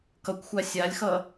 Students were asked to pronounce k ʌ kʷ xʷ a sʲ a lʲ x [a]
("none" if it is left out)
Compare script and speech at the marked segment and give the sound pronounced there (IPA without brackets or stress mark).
ʌ